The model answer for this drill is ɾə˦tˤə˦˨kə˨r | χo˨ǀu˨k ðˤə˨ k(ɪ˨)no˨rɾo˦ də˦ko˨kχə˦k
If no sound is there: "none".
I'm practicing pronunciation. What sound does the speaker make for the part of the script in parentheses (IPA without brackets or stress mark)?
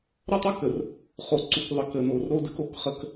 ə˨